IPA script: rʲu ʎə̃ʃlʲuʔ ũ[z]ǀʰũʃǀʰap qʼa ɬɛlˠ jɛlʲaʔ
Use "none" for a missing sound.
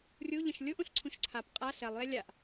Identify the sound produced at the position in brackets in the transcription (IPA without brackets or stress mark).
ɬ